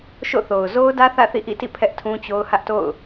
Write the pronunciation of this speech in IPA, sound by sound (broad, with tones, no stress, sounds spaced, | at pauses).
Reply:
ʃ o̰˦˨ θ o˨ ʊ̯ z o˦ ʊ̯ d ä˦ θ ä̰˦˨ θ ḭ˦˨ ʔ ḭ˦˨ t ḭ˦˨ pʰ ɛ˦ ʔ tʰ ũ˦ t͡ɕ o˦ ʊ̯ h ä˦ ʔ t o̰˦˨ ʊ̯